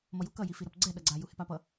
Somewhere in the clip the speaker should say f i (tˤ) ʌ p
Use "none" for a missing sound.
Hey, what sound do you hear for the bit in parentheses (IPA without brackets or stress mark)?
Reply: ɾ